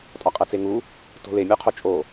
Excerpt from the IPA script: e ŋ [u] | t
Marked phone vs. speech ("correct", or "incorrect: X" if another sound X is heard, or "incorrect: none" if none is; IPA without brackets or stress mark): correct